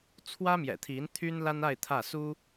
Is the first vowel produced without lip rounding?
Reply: yes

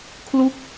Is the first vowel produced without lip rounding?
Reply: no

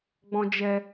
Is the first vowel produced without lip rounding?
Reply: no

